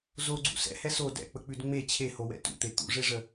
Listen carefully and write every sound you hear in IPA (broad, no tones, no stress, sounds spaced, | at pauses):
z o ɡ͡ǀ ṵ s ɛ̰ h ɛ s o d ɛ̰ k͡p ə k͡p ʉ d ŋ͡m e t͡ɕʰ e h o w ɛ̰ t ṵ t̪ e t̪ ṵ ʐ e ʐ ə